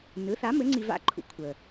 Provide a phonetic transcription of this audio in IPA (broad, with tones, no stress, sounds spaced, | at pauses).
n ɯ˩˥ θ a˩˥ m ɘ˩˥ ŋ͡ǀ i˧ v a̰˥ ǃʰ ṵ˩˥ kʷʰ ə˩